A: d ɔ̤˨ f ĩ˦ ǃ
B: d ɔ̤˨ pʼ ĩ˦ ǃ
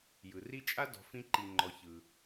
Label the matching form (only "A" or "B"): A